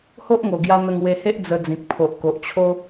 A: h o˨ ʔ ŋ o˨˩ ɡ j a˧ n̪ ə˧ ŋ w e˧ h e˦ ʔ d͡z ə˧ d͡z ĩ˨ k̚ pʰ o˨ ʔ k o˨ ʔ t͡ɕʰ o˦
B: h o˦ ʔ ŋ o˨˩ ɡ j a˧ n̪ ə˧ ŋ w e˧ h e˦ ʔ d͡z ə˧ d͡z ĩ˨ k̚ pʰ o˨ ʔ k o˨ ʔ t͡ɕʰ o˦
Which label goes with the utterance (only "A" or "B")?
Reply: B